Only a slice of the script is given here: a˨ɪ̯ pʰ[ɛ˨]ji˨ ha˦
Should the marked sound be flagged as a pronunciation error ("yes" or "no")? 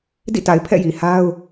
yes